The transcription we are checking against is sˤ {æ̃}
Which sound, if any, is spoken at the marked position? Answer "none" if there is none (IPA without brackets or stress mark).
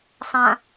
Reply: ã